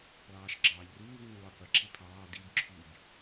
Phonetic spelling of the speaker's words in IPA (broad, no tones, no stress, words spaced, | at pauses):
lˠɑːʃɡ͡ǁɑːʎruːv ũːlˠoqʷi ǁipʰɑː dib ǁʰyb